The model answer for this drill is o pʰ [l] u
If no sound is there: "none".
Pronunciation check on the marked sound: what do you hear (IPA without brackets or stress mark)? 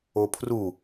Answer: r